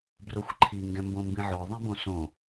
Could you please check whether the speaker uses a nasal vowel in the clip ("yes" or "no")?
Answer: yes